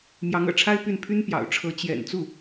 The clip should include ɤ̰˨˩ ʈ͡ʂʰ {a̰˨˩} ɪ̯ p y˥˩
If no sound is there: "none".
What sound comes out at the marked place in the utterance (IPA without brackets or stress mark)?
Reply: a˥